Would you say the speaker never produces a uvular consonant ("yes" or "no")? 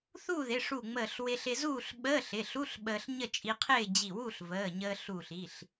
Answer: no